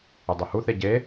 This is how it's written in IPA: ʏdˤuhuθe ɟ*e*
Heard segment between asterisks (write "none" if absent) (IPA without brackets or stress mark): e